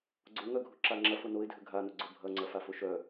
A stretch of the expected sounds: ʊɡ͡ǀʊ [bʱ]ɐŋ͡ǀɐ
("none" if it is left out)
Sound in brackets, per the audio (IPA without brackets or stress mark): bʱ